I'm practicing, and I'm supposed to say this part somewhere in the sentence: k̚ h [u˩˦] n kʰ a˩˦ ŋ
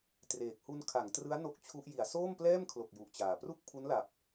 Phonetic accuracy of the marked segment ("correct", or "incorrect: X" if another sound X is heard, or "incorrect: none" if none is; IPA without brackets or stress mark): incorrect: u˧